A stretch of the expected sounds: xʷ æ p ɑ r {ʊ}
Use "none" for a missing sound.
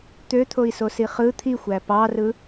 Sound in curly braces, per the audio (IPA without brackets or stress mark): ɯ